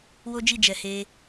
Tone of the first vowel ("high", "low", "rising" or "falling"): high